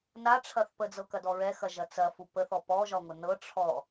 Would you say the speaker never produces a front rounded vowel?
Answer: yes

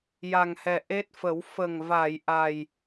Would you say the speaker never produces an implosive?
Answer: yes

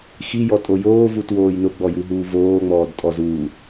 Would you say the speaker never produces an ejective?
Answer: no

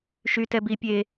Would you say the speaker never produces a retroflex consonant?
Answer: yes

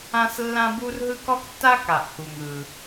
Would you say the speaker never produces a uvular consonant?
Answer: yes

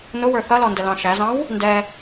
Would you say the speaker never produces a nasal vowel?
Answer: no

